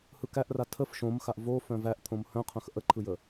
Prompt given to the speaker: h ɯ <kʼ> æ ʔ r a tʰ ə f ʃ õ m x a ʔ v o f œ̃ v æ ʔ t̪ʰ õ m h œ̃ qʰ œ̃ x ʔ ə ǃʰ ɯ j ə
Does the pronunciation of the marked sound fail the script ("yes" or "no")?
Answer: yes